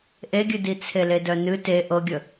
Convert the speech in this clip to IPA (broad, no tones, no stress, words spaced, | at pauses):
ʔeɡʲɨdi t͡sʰeledœnɨ te ʔɤɡʲə